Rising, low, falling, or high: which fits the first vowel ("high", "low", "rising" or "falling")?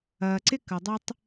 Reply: low